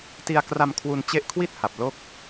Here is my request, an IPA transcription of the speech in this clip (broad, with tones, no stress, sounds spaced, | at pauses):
t i˧ a̯ k r a˧ m kʰ w u˧ n t͡ɕ e˦˥ ʔ kʰ w i˥˩ t̚ h a˨˩ p̚ l o˥˩ k̚